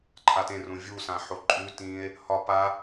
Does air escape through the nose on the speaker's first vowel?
no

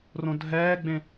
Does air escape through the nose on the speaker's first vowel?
yes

